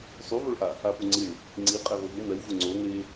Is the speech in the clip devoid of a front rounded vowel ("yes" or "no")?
yes